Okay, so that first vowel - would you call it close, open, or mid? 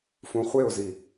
close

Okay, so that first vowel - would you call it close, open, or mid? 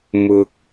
close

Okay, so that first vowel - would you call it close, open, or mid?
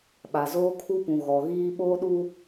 open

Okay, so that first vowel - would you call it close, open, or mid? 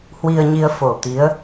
close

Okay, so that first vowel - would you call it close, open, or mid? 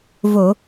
mid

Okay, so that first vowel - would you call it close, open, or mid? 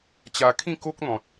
open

